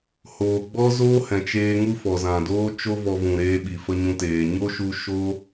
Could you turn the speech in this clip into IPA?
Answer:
h oː˨ ɡ͡b ɔ˦ z oː˦ h ɛ̃˨ t͡ʃ eː˧ ŋ u˦ f ɔ˨ z ã˨ d oː˦ t͡ʃ o˦ v ɔ˧ v ũ˨ ɾ eː˧ ɓ i˨ f ə˧ ɲ ũ˧ t eː˨ ɲ o˦ ʃ u˧ ʃ o˦

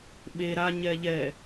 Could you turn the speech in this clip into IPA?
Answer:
ɓ e ɾ a ɲ ɛ ʎ ɛ

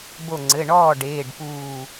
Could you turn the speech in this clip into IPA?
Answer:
b o˧˩ ŋ͡ǀ ɘ˩˧˩ ɳ ɔː˥˨ ɖ eː˩˧˩ ɖ p uː˧˩

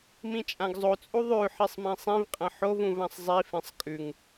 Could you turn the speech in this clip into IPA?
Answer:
m ĩ t͡ʃʼ ã ɡ zˤ o t͡sʼ u ðˤ ʉ ħ i sˤ m ĩ sˤ ĩ v qʼ ɐ̃ ħ o v ũ v ã sˤ zˤ i f ẽ sˤ kʼ ʉ ŋ

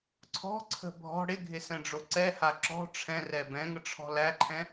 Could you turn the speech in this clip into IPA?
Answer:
ǀʰ ɔ̤ ǀʰ ə̤ bʱ ɔ̤ ɽ ɪ ɡʱ ɪ s ɛ̃ ɖ͡ʐ o ǀ ɛ h a ǁ ɔ̤ ʈ͡ʂʰ ɛ̃ r ɛ b ɛ̃ ŋ ə ʈ͡ʂʰ ɔ̤ l æ ǃʰ ɛ̃

